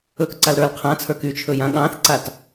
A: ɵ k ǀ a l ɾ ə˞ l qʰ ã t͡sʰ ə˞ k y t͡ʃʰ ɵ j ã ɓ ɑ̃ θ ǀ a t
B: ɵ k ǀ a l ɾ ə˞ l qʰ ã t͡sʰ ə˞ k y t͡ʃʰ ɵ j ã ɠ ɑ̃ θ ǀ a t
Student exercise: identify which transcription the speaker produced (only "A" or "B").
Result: B